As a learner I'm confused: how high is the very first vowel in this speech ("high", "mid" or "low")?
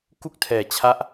high